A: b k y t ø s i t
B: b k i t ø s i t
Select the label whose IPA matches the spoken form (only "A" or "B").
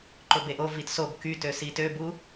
A